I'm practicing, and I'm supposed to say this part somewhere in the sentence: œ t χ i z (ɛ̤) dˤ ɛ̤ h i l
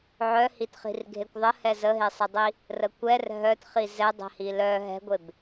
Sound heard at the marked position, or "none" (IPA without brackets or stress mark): ɛ